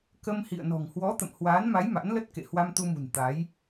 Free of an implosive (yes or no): yes